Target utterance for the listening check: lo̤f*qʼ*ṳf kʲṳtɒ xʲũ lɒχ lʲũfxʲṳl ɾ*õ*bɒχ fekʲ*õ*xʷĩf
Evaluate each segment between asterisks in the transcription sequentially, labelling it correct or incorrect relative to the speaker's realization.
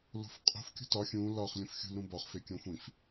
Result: correct, incorrect: ũ, correct

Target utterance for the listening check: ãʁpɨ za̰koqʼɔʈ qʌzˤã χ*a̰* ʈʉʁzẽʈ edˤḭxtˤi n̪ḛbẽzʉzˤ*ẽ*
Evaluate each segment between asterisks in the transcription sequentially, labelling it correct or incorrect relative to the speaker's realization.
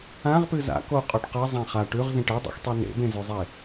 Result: incorrect: a, incorrect: e

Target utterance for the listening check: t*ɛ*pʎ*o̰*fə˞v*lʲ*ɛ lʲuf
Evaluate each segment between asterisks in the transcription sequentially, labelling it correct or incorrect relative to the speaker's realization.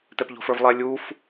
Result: correct, incorrect: o̤, incorrect: lˠ

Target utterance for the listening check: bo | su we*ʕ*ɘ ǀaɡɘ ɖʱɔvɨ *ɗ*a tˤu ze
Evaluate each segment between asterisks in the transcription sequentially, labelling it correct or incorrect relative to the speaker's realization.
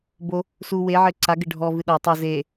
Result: correct, correct

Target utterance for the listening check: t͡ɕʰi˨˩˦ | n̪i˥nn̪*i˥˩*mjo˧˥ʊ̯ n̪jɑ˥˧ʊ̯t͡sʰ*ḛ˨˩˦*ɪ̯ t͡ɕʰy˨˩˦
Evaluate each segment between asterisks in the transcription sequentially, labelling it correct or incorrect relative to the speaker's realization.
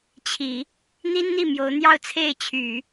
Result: correct, incorrect: e˥˩

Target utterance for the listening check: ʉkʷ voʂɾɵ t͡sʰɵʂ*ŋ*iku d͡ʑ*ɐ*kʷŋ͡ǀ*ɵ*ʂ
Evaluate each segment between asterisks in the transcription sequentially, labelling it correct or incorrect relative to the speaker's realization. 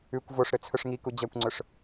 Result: correct, correct, correct

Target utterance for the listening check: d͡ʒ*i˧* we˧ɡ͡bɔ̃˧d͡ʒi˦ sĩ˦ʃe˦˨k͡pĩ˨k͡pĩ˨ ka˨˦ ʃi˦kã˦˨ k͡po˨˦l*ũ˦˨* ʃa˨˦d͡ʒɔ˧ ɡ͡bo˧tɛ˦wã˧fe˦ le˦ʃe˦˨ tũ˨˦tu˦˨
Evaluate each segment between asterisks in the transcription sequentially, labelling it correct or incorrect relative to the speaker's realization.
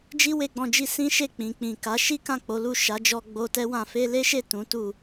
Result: incorrect: i˦, incorrect: u˦˨

